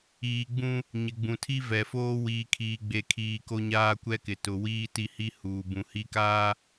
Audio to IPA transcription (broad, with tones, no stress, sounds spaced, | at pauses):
iː˨ ɡ͡b ũ˦ | ɲ ɪ˨ ɡ͡b ũ˨ tʰ i˦ v ɛ˨ f oː˦ w iː˨ kʰ iː˨ ɡ͡b e˨ kʰ iː˨ k o˦ ɲ aː˦ kʷ ɛ˦ k ɪ˨ t ʊ˨ w iː˦ t i˦ h i˦ h uː˨ b ũ˨ h i˦ k aː˦